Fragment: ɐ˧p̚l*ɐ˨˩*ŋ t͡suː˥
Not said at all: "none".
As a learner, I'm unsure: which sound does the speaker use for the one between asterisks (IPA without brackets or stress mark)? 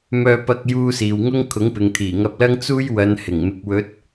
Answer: ɐ˥